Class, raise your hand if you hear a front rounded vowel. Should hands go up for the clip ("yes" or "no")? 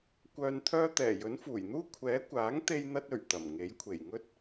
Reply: yes